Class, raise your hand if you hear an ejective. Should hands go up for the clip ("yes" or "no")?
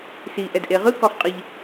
yes